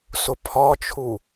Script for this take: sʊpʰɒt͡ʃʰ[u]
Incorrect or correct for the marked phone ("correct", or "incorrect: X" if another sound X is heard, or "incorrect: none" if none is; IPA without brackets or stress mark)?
correct